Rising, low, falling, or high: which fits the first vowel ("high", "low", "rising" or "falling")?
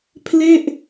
falling